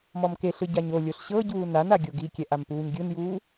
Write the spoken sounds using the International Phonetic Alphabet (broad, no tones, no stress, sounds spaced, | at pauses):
m ɔ m k e ɬ ɯ ɟ a ɲ o lʲ o ɬ ɕ ɤ ɟ uː n a n a ɡʲ o ɡ i kʲ ɛ ʔ a m p uː ɲ ɡʲ ɯ n j uː